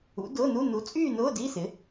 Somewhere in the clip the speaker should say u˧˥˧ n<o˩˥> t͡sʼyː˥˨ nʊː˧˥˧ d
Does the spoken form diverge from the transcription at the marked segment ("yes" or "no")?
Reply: yes